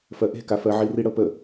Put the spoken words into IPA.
fɜʔe̤kafɜ ʕiriɽɤpə

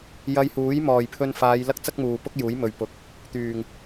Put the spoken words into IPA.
jɐ˧jhuː˨˥j mɔː˨˩jpʰɵ˧nfaː˨˧j lɐ˥k̚t͡sɐ˥k̚muː˨pʊ˥k̚ juː˨˥jmɵ˨ɥpʊ˨˥k̚ | t̪yː˨˩ŋ

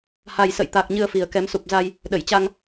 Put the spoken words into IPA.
ha˨˩jsə̰˧˨jt̪a˨˩k̚ ɲɨ˧ə̯fi˨˩ə̯kɛ˨˦m su˨˩p̚za˧j | ɗə˧˩jt͡ɕa˧ŋ

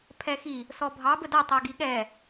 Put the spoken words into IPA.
pʰɛxi | sɔbʱɑ bədatˤaɡi ɠɛ

